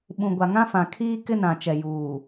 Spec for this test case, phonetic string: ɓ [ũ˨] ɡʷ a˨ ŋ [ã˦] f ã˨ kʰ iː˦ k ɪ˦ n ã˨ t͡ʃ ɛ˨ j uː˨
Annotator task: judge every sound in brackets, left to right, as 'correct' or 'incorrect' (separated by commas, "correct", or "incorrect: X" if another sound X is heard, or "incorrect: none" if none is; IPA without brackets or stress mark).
correct, correct